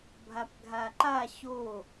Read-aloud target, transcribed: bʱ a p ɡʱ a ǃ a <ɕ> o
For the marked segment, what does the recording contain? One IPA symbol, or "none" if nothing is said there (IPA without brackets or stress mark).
ɕ